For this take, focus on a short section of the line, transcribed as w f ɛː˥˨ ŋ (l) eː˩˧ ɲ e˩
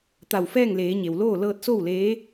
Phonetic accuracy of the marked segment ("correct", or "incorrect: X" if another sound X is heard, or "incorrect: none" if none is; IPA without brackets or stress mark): correct